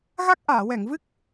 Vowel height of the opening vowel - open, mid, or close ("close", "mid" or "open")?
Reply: open